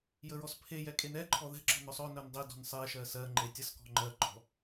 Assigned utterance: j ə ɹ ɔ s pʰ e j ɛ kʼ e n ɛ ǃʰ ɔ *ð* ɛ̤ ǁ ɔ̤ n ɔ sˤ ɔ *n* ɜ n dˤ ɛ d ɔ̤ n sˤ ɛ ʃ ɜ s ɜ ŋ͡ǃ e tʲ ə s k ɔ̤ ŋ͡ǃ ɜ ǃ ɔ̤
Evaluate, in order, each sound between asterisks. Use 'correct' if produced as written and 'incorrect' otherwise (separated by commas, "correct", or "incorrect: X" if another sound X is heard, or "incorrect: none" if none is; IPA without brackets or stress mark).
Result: correct, correct